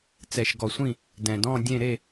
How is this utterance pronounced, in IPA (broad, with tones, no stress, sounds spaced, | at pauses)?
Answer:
t͡s ɛ˨ ʃ ɡ ɔ˨ sʷ ĩ˦˨ | d ɛ̃˨ d ɔ̃˦˨ dʲ ẽ˦˨ ɾ e˦˨